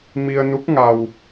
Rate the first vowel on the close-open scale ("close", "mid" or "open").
close